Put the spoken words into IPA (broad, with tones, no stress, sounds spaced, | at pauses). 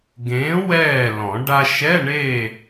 ɡ ẽː˨˥ w ɛː˥˨ l ɔ̃˨˩˦ ɖ a˧ ʃ ɛ˧˥˧ ɳ e˥˨